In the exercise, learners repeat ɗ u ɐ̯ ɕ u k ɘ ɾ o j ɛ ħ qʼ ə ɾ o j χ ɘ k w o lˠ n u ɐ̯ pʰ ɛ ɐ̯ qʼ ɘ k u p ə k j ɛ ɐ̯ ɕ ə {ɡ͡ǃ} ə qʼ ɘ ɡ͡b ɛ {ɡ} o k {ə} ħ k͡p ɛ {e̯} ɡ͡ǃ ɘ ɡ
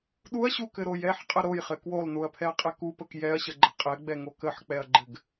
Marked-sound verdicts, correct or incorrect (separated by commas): correct, incorrect, correct, incorrect